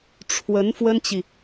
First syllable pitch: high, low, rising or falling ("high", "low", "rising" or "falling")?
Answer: rising